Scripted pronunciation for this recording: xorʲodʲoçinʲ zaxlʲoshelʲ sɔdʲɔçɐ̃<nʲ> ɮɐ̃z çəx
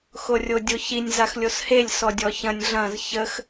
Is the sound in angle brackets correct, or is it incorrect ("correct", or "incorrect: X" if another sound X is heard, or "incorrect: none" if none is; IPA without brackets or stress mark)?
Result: correct